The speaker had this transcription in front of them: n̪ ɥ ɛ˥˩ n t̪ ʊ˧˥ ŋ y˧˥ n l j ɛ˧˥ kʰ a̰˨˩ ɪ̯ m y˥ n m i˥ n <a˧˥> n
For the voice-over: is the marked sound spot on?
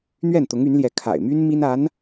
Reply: yes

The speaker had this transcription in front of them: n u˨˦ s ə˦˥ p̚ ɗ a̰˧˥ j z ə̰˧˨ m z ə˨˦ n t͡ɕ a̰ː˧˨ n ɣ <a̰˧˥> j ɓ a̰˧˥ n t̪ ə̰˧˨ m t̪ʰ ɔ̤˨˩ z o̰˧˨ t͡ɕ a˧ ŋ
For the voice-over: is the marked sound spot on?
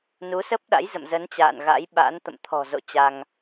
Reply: yes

